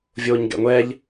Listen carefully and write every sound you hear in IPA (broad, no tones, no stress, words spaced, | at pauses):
vʲoːɲɡɛ̰ŋʷɛʎ